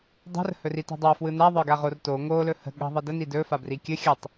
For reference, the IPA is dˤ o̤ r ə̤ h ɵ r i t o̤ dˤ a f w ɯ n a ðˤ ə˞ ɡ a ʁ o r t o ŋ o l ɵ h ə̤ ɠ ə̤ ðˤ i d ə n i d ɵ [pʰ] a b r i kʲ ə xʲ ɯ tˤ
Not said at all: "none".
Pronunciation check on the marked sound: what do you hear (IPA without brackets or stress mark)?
f